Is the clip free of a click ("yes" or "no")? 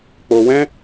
yes